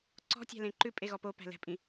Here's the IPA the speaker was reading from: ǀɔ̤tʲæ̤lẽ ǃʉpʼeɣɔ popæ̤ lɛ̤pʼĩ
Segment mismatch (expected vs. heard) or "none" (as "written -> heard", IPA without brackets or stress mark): none